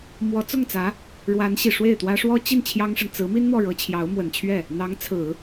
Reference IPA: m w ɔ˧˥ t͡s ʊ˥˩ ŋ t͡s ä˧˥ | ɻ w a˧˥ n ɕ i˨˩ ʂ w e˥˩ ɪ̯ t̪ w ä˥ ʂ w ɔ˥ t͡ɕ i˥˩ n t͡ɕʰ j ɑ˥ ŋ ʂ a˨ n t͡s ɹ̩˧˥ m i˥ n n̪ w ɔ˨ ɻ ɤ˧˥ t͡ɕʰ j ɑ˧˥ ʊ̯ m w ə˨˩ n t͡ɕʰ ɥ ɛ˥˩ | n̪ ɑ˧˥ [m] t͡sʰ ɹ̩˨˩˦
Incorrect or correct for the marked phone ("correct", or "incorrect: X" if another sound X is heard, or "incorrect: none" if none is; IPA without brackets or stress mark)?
incorrect: ŋ